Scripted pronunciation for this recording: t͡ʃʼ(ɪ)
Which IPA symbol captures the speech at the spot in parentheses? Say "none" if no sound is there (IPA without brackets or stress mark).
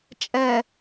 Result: ɛ